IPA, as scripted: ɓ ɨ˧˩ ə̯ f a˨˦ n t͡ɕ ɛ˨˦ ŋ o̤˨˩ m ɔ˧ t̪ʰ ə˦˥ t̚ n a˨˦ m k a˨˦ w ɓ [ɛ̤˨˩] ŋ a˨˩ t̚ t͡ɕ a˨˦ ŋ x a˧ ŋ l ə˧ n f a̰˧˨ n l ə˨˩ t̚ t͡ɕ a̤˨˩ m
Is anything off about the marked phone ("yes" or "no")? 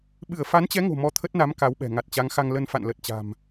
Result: no